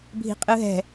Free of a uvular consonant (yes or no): no